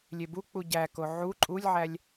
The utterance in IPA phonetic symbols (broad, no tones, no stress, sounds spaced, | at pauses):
lʲ e b u k͡p u ɟ æ k o ʕ u ǃʼ u lʲ ʕ æ lʲ